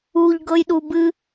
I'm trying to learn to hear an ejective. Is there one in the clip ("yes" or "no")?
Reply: no